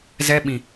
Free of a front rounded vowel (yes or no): yes